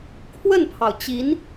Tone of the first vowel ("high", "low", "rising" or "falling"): falling